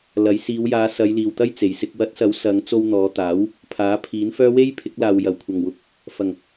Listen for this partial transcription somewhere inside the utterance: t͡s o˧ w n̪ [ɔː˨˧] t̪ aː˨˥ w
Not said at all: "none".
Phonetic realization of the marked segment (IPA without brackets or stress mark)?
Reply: ɔː˨˧